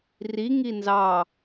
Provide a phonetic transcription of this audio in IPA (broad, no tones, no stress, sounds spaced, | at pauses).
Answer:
r i ŋ i n z ɑ